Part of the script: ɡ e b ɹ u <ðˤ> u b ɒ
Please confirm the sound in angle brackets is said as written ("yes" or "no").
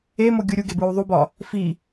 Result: yes